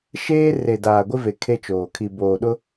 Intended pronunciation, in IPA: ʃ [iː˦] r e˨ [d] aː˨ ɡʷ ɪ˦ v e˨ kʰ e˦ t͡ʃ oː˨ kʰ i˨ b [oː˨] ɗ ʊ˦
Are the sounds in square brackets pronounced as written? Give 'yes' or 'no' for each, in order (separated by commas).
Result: no, yes, yes